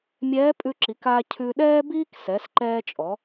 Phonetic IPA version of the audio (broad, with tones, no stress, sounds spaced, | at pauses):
mʲ ɛː˧˥ pʼ ʉ˧ ǁ i˩˧ k aː˧ cʰ ʉ˧ ɗ ɛː˥ b iː˥ k s ɛ˩˧ s ǃ ɛː˧ t͡ʃʼ ɔ˩˧